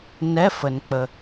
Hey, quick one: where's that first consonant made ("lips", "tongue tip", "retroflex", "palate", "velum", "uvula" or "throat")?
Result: tongue tip